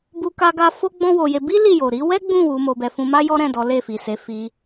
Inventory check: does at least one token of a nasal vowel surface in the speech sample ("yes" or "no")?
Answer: yes